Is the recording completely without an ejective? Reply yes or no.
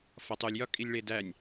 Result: no